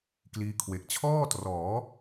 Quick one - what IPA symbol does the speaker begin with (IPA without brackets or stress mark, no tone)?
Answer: k